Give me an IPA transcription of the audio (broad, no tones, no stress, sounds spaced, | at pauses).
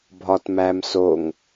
bʱ ɒ t m æ m s o ŋ